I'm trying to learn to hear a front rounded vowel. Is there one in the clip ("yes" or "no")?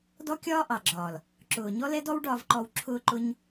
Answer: no